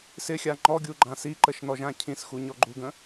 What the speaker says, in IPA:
sɪxʲa ŋ͡ǃɔɡʲu ɡ͡ǃãsiǃəʃ nɔʒãcʰĩsxu ɲɔɡ͡ǃuɡə̃

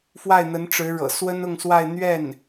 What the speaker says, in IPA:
fwa˥˩ɪ̯n̪ə˧˥n ʈ͡ʂɻ̩˧˥ɻɤ̰˨˩ swə˥nʊ˥˧ŋswa˥˧ɪ̯ n̪ɥɛ˥˩n

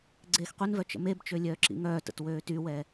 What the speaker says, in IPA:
ɡ͡ǀeːxqʷinvœ t͡ʃə̰mebt͡ʃø lʲœːǁḭŋœːtə̰t wøːtywɛ

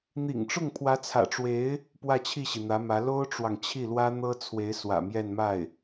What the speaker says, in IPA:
n̪ḭ˨˩ŋʈ͡ʂʊ˥˩ŋ pʰwä˧˥t͡sʰä̰˨˩ʈ͡ʂwe˧˥ɪ̯ | pwä˥˧t͡ɕʰi˥˩ɕi˩ n̪ä˧˥mä˧˥ lo˥ʊ̯ʈ͡ʂwɑ˨ŋ t͡ɕʰi˥˩lwä˥n̪ɤ˥t͡sʰwe˧˥ɪ̯ swä̰˨˩mjɛ˥˧nma˥˩ɪ̯

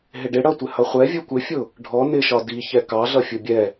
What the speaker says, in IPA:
ɦɪɖɪ ɽʌtʷɪhʌ χʷɛ vʲukʷɪfʲʊ | ɖʱɔ nɪʃɒ diçɛ kɑɮʌ fʲʊbʲɛ

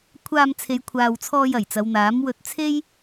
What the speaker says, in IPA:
kʷʰaː˧mt͡sʰe˨˧j kʷʰaː˨wt͡sʰɔː˧j ɐ˨˩jt͡sɐ˨˧wn̪aː˨˥m wɵ˧t̚t͡sʰe˥j

